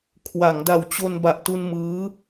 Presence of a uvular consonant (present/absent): absent